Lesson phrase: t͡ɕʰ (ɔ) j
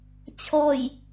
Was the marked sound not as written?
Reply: no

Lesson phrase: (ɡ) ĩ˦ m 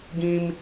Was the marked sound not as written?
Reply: no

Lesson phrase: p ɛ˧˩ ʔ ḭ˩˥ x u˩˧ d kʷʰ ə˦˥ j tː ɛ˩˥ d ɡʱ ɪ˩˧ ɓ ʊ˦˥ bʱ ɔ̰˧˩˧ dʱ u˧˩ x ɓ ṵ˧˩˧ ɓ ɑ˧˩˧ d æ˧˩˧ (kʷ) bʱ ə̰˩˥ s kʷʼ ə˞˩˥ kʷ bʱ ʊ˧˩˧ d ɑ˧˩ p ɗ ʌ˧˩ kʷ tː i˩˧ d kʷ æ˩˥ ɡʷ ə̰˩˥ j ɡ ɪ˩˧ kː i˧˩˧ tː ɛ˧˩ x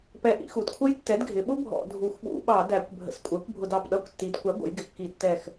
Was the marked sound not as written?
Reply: no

